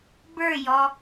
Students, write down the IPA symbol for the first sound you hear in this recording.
b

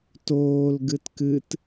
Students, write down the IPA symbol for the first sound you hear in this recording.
t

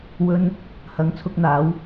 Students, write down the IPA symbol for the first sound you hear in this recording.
w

